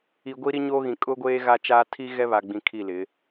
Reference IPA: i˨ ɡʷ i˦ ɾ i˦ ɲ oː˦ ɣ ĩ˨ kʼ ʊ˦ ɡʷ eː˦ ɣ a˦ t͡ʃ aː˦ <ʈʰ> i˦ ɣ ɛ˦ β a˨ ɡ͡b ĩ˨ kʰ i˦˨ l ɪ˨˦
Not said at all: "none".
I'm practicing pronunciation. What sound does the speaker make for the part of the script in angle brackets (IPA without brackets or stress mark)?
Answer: tʰ